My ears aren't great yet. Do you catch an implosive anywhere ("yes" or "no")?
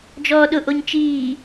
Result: yes